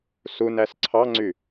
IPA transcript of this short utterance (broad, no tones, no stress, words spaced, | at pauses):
sunæs ǀʰɑŋ͡ǀy